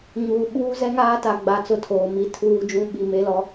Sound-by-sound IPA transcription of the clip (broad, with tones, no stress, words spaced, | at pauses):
ɲuː˨ ɓuː˦zɛ˦ŋaː˦ ta˨ɡ͡ba˨˦t͡sʊ˨ tʰoː˨mi˦tʰuː˦d͡ʒũ˦ ɓi˨me˦lɔ˦